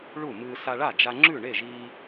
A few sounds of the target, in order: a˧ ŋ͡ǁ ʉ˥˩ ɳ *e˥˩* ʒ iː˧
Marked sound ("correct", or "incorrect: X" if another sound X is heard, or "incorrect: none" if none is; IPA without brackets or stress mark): correct